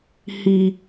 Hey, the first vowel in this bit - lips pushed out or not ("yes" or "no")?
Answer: no